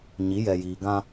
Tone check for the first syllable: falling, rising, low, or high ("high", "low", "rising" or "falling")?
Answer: rising